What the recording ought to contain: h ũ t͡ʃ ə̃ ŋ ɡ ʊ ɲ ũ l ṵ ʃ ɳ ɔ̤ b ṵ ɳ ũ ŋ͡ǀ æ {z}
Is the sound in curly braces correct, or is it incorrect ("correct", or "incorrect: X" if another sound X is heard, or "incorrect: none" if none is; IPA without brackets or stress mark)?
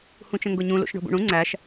incorrect: ʃ